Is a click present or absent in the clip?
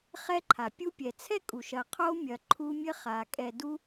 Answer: present